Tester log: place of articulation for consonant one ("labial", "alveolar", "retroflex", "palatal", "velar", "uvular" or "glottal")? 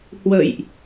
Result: glottal